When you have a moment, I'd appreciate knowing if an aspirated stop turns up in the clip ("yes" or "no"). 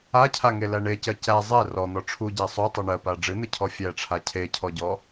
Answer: yes